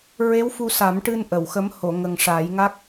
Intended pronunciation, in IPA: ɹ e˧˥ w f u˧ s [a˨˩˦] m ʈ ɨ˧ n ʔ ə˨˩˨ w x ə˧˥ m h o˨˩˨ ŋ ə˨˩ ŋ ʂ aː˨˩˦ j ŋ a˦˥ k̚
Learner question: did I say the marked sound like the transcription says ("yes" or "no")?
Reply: yes